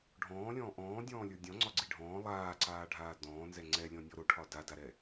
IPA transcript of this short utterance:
ɖʱ ɔ̃ː lʲ ɔ̃ː ʔ ɔ̃ː dʲ ɔ̃ː lʲ ə˞ dʲ ɔ̃ ŋ͡ǀ ɒ ɡ͡ǀ i ɖʱ ɔ̃ː lˠ aː ǀ aː ɖʱ aː d ɔ̃ː n z ɛ ŋ͡ǀ ɛ lʲ ɔ̃ nʲ ɔ ɾ o ʈʰ ɒ d a d a ɾ ɛ

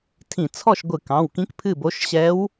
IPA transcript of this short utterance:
tʰ ĩ˧˩˧ t͡sʰ ɔ˥˨ ʃ ɡʷ ɨ˧˩˧ k ɑ̃˩˧˩ w k ĩ˧˥ k pʰ ɨ˥˨ b o˧˥ ʃ ɕ ɛ˧˥ w

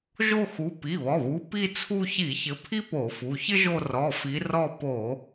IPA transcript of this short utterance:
ʒ o˦˨ x u˩˧˩ p i˩˧˩ β ɔ˩˧˩ β u˩˧˩ p i˦˨ t͡sʰ u˦˨ ç i˧˩˧ ç ɘ˨˦ pʰ i˥ p o˧˩˧ f u˩˧˩ ç ɘ˥ ʒ o˦˨ r ɔ˩˧˩ f i˨˦ r ɔ˦˨ p o˧˩˧

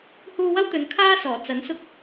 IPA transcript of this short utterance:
h uː˧ w ɐ˥ w t̪ ɵ˨˧ n kʰ aː˥ s ɔː˨˩ t͡s ɐ˨˥ n s ʊ˥ k̚

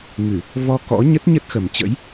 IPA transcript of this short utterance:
ŋ ɨ˧˩˨ | v ɔ˧ k ɔ̰˧˥ ɲ ə˦˥ t̚ ɲ ə˦˥ t̚ x ə˨˩ m t͡ɕ ə̰˧˥ j

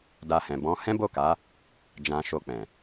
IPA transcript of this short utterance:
d a˧ h ɛ̃˨ b ɔ̃˨˦ h ɛ̃˦ b o˦˨ k a˨˦ | d͡ʒ ã˧ ʃ o˧ k͡p ɛ̃˨

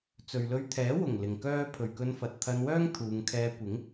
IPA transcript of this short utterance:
t͡s ɵ˨ ɥ l ɵ˧ ɥ t̪ʰ ɛː˨˥ w ʊ˨˩ ŋ l ɪ˨ ŋ k œː˥ pʰ ɵ˨ ɥ k ɵ˧ n f ɐ˨ t̚ t̪ʰ ɐ˧ n w œː˥ ŋ t̪ʰ uː˨˧ ŋ kʰ ɛː˧ kʷ ɪ˨˥ ŋ

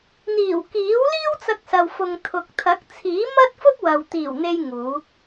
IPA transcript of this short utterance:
n̪ iː˨˩ w k iː˨˥ w l iː˥ w t͡s ɐ˧ k̚ s ɐ˨ w f ʊ˨ ŋ t̪ʰ ʊ˨ k̚ t̪ʰ ɐ˨˥ k̚ t͡sʰ iː˨˥ m ɐ˥ t̚ f ʊ˥ k̚ w ɐ˨ w t̪ iː˨˩ w n̪ e˧ j ŋ uː˨˥ k̚

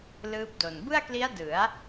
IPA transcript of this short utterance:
l ɯː˦˥ p̚ d o˨˩ n b ɯ˥˩ a̯ k l i˦˥ a̯ d ɯ˩˦ a̯

